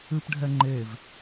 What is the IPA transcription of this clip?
ɨ p ɖʱ ɛ ŋ͡ǃ e v

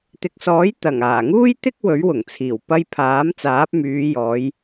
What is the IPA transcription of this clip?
t̪ ɪ˨ k̚ s ɔː˨˥ j t̪ ɐ˨˩ ŋ aː˨˩ ŋ uː˥ j t̪ ɪ˥ k̚ w ɵ˨˥ ɥ w ʊ˨˩ ŋ t͡sʰ iː˨˩ w p ɐ˧ j pʰ aː˨˥ m t͡s aː˨˥ p̚ m yː˨˧ j ɔː˨˧ j

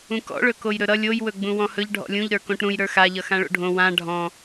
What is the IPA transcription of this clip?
ũ k ɔ̰ ɭ ɵ k o j ɾ ɵ ɾ ʌ lʲ o j w ɵ ɡ͡b ũ w ɔ̃ h ɵ ʎ ɖʱ ɔ̰ lʲ ũ ʎ ɾ ə˞ k õ ʈ ɾ ũ j ɾ ə˞ x a ʎ ʌ x ã ɭ o̰ ɖʱ õ w ã ɖʱ ɔ̃

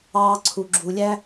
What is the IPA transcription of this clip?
ɑː˧ ǀʰ u˨ ɡ͡ǁ u˨ lʲ æ˦

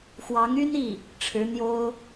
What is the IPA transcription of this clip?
x w ɑ˧˥ ŋ y˥ n i˥˩ | ʈ͡ʂʰ ɻ̩˧˥ n̪ j o˥ ʊ̯

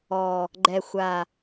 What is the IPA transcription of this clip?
ɔ˨˩ | ɡ͡ǃ ɛ˨˩ xʷ a˨˩

